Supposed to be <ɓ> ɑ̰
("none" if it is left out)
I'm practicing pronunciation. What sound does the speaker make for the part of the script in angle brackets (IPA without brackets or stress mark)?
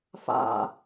f